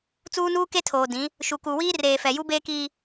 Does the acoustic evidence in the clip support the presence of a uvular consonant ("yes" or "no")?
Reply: no